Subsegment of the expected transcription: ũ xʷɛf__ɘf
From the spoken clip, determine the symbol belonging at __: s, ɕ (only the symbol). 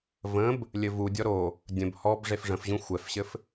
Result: ɕ